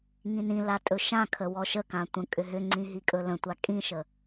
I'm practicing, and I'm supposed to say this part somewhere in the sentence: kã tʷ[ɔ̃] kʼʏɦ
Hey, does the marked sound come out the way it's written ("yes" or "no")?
no